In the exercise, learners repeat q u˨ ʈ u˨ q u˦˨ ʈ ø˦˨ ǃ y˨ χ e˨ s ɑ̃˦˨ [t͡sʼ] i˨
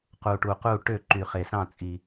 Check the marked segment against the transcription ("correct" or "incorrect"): correct